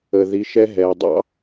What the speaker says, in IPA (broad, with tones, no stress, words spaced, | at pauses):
ə˩ði˩˧ ʃɛ˧ɦɛː˩dˤɑ̰˥